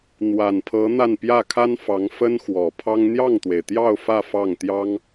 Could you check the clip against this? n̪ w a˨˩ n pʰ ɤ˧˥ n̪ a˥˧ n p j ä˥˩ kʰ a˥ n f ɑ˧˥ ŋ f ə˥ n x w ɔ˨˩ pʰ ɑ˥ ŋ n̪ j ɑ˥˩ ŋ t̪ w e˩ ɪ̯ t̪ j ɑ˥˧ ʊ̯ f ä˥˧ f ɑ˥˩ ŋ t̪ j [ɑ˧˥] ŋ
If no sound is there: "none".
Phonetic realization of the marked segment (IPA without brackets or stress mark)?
ɑ˥